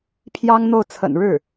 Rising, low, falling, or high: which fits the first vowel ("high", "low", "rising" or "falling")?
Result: high